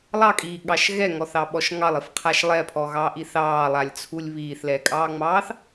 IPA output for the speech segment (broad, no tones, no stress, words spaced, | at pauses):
lˠɑkʼiːɠɑʃ ɣɛŋɔθɑɓɔʃ ŋɑlˠifqʰaʃ lˠɛpʰɔɣɑːʔi θɑːlˠalʲt͡sʰulʲ βiːθlɛkʼɑːŋ͡mɑːθ